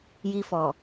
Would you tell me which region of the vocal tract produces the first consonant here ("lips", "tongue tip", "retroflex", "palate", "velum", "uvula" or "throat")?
palate